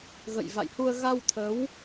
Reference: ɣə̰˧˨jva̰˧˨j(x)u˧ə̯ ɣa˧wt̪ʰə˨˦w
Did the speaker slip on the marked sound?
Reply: yes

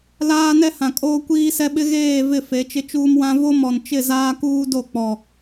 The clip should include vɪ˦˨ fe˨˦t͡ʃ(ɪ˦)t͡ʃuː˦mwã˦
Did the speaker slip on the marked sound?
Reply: no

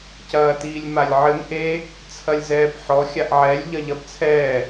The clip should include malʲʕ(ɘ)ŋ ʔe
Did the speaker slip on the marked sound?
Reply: no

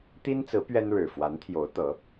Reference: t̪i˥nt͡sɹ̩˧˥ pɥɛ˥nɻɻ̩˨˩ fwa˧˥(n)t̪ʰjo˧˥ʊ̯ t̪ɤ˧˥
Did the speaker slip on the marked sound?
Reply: no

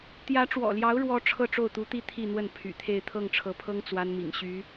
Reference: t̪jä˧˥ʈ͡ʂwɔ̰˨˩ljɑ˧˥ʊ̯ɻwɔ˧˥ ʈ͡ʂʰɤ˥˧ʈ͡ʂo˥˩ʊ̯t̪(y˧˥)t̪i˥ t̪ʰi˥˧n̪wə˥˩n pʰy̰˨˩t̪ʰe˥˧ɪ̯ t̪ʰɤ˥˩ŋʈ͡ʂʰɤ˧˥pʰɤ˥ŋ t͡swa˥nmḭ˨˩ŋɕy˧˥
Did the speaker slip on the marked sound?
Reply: yes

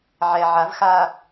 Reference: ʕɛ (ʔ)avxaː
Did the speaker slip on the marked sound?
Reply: yes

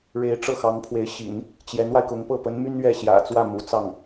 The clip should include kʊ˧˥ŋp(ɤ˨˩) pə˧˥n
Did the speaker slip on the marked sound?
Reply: yes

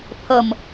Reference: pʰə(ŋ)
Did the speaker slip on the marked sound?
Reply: yes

